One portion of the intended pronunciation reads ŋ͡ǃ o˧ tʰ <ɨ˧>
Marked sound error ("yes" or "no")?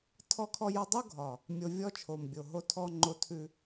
yes